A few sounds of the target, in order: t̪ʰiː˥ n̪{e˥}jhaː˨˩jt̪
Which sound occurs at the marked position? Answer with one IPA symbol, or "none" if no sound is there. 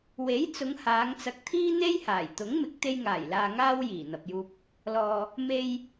e˥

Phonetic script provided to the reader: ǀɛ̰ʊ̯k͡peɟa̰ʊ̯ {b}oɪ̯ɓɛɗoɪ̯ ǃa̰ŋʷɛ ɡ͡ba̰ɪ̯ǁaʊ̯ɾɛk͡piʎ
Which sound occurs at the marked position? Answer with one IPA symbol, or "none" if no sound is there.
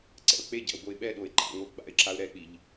b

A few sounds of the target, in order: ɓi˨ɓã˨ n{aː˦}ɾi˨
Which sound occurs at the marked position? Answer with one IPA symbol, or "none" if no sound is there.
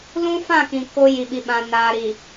aː˨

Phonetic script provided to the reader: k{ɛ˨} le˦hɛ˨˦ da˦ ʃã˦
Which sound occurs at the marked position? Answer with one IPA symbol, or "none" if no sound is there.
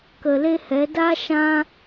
ə˨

